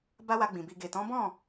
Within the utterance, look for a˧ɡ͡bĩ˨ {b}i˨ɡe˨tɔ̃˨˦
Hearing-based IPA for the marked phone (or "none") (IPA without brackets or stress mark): b